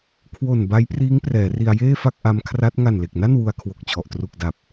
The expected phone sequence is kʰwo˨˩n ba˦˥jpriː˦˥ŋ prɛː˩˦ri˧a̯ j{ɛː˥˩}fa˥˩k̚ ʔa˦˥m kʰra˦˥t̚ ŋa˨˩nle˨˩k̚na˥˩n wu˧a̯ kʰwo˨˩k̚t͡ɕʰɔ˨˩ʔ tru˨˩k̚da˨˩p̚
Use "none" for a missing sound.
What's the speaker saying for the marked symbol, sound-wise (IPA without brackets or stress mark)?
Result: eː˥˩